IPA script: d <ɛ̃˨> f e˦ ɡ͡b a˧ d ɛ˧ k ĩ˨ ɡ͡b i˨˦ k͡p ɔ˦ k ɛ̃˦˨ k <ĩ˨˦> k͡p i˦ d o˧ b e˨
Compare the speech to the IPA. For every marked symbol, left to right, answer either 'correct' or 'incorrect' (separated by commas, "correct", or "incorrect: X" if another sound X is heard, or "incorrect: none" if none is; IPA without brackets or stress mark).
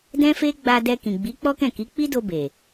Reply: incorrect: ɛ̃˦, incorrect: i˨˦